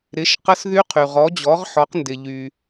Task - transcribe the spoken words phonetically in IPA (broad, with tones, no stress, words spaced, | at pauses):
ɾɪ˩˥ʃ qə˧˥sðy˧˥qʰy˩ ʁɔ˩˥d͡ʑɔ˩˥ʁħɔ˩˥qndɪ˩ ʎy˩